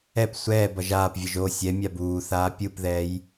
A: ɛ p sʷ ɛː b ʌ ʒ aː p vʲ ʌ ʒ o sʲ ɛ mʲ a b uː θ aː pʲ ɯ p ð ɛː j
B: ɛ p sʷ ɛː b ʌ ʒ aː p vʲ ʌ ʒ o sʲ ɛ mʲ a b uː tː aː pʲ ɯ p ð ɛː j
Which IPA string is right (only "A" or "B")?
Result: A